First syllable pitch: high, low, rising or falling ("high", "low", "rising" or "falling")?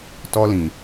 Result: high